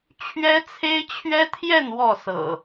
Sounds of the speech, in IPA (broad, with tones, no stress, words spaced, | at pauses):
t͡ɕʰɥɛ˦t͡sʰe˦ɪ̯t͡ɕʰɥɛ˦t̪ʰjɛ˥˨n wɔ˥˨sɤ̰˨˩